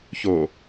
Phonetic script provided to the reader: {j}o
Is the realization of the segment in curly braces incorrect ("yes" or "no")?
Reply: yes